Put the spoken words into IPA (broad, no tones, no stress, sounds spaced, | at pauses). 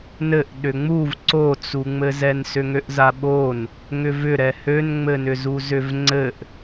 n ɘ ʔ ɗ ʏ ŋ͡m u v ǀ o t͡s u ŋ͡m ɘ z ɛ n s ʏ ŋ ø ʔ z a ɓ o n | ŋ ʏ v ʏ ɾ ɛ h ø n ŋ͡m ɘ n ʏ z u z ʏ v ŋ͡ǀ ɘ ʔ